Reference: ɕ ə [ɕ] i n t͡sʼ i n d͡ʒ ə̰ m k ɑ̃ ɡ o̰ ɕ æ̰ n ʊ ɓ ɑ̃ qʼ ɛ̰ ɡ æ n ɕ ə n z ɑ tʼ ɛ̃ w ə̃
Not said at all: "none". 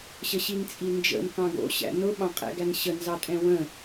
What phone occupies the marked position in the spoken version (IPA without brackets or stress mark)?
ɕ